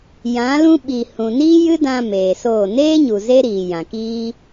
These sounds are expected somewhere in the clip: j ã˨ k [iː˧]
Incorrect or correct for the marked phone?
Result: incorrect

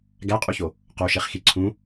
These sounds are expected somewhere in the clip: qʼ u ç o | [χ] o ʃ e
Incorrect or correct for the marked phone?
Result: incorrect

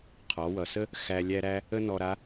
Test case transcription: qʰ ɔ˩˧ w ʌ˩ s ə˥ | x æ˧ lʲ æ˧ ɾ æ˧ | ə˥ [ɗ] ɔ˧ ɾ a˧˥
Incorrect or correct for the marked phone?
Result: incorrect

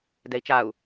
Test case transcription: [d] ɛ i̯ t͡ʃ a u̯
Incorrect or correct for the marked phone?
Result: correct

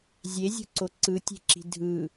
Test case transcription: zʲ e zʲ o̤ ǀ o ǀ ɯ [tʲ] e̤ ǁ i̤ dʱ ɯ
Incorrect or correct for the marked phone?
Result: correct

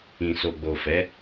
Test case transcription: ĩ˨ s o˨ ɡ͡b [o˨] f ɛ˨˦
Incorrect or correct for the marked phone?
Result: correct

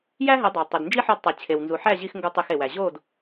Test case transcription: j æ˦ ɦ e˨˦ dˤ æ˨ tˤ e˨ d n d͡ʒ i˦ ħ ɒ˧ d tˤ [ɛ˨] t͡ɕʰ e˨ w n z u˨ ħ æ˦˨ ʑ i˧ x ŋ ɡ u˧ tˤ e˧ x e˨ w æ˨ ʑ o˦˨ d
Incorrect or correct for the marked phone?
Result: incorrect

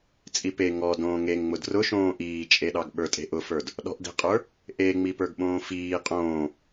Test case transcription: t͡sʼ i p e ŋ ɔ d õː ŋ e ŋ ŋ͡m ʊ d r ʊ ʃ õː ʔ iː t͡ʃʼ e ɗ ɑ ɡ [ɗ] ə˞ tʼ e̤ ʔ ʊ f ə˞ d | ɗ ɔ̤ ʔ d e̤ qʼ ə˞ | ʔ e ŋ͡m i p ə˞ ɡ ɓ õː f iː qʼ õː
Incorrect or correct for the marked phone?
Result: incorrect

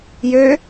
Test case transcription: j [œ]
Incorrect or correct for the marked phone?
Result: incorrect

